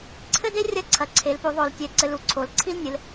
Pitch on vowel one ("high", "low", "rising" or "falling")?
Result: high